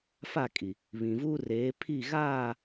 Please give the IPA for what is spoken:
fa˦˨kʼi˨ | βĩ˨ vuː˦reː˨˦ pʰi˦˨ɣaː˦˨

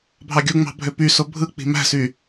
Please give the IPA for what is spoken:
bʱɑɡʲuŋ͡mɑ̤ bʱøpyso bʱɯ k͡pi̤mæ̤sy

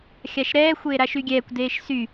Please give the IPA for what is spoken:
xʲaʃɾɛː xʷeːɾaʃyɡʲɛːkʷ deːʃsy

